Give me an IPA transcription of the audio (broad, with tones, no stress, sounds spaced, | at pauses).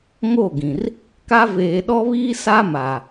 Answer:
ŋ o˦˨ ɡ ĩ˨ r | k a˦ v eː˨ ɗ ɔ˦ β iː˦ s a˦ m a˨